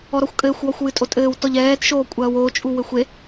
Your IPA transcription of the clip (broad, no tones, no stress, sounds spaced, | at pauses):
ɔ ɾ ɔ xʷ kʼ ɘː xʷ w ɔ xʷ w ɨ tʼ o tʼ ɘː w t ɔ ʎ ɛː t ʃ oː kʷʼ ɐː w o t͡ʃʼ u w ɘ xʷ e